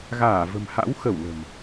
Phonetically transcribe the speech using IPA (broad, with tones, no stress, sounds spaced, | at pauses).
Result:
ɣ aː˧˩ v ə̤˨˩ m h a̰˧˥ w x ə˧˩ w l ə̤˨˩ m